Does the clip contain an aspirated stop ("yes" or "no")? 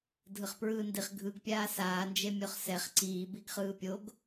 no